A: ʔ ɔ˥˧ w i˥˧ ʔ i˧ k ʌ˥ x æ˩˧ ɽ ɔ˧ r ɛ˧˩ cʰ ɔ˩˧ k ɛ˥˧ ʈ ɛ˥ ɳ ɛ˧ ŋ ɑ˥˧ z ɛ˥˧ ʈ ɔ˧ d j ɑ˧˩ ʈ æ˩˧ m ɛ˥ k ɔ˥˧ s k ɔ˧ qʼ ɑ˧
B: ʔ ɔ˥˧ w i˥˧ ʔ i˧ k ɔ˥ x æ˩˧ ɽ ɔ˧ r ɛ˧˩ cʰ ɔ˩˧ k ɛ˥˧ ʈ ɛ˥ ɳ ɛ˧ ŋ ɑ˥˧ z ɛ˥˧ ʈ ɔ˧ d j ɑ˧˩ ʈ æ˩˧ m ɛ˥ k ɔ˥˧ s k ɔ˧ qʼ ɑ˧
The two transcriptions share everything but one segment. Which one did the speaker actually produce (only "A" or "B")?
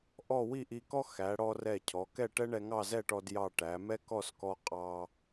B